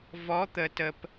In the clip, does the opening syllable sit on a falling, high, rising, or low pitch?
rising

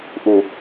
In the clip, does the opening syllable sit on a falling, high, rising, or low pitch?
low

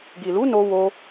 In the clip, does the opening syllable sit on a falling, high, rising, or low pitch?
low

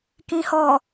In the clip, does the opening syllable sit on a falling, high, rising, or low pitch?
low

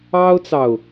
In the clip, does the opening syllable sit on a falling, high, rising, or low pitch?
high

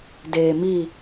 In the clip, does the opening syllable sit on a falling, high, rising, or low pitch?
low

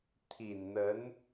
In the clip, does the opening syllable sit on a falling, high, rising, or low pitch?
low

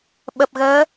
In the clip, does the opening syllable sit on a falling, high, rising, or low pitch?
low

